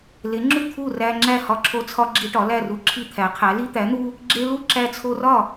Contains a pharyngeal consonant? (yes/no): no